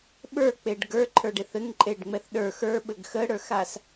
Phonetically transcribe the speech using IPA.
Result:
ɓə˞k͡peɖ ɡə˞ǃʰə˞ɖeθ ɘŋǃʼeɖŋ͡mɛθ ɗə˞ xə˞ɓɘɡ xəɽə˞xas

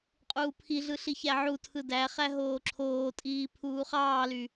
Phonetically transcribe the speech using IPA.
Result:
qʼuːpʰiɮɯ ɬiçæʕutʰɯ dæχæ ɦoːǁʰoːtʼiː pʰuːχɑːly

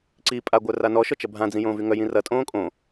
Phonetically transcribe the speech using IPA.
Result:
ǀi pʼaɡʷœra nɔʃɔt͡ʃɐ bʱãd͡zĩjõːvy ŋœjĩ rɐtʼõː kʼõ

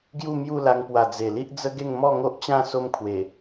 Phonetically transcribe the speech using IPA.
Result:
ɡju˥˧mju˥˧la˧ŋpwa˨˩ d͡ze˨˩li˦ʔd͡zə˦ɡe˥˧ŋ mɔ˥˧ŋo˦ʔt͡ɕã˥˧ so˦mkʰwe˨˩

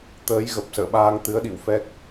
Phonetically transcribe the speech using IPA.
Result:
t̪əː˨˦jɣə˨˩p̚sə̰ː˧˨ɓaː˧ŋ t̪ɨ˨˦ə̯ɗḭ˧˨w fɛ˦˥k̚

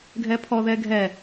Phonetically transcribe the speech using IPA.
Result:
ɡʱɛpʰɔðɛ ɡʱɛ

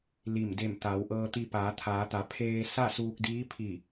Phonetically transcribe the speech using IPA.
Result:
li˧˩m de˧˩m t̪a˩˧w ʔɤː˧t̪i˧ paː˩˧t̪ʰaː˩˧t̪a˩˧ pʰeː˧sa˥˨suː˧k̚diː˧˥ pʰi˧˩

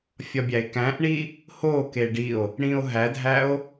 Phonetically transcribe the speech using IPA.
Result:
fʲɒbʲæe̯kæ̃ʔɳi | ho keɖio̯ | ɽĩo̯ɦædʱæo̯

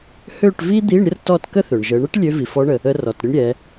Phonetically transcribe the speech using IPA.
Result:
hø˥˨ʈvi˥d̪i˧˥˧ɳ ɾʲə˥rtɔ˥˨tkə˥θø˩ɳ ʒə˩˧ɳə˥ʈ lʲø˧˥vi˩fɔ˧˥ɳə˩ | ə˧˥rɔ˩tɾʲə˥ɳ ɾʲɛ˩˧

